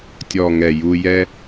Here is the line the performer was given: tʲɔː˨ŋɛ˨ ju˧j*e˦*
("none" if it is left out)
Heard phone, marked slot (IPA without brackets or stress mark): ɛ˦